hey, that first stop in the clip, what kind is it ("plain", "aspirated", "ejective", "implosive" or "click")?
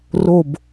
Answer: plain